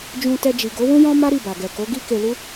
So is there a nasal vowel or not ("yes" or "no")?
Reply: yes